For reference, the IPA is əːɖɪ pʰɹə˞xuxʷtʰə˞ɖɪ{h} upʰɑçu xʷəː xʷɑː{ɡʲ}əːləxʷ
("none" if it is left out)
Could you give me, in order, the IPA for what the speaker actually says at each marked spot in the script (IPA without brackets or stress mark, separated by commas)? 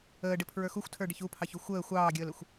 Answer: ç, ɡʲ